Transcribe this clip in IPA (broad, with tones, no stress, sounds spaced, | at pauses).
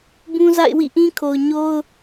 b ũ˦ z a̰˦˨ ɪ̯ w ḭ˦˨ ʔ ĩ˦ kʰ o˨ ʊ̯ ɲ o˦ ʊ̯